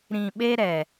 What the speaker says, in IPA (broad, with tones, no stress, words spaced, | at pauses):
ɾĩ˨ɓe˦ ɾɛ˨